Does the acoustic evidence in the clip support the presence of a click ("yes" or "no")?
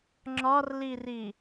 yes